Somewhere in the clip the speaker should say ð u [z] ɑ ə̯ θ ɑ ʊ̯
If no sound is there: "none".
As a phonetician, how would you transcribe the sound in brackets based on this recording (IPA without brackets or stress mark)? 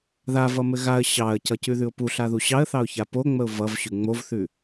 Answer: ɕ